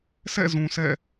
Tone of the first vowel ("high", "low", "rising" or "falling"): falling